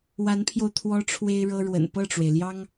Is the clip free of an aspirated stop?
no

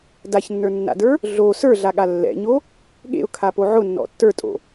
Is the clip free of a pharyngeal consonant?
no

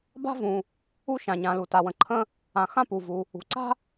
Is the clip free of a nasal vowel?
no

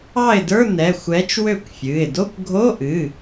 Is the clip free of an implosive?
yes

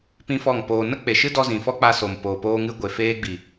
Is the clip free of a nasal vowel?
no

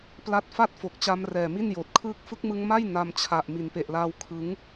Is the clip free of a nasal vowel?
yes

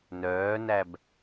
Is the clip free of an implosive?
yes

